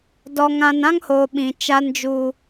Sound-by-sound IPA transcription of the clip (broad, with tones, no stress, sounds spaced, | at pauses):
d ɔ˨ ŋ ã˨ n ã˦ ŋ h oː˨ ɓ ĩ˨ t͡ʃ a˦ n d͡ʒ uː˨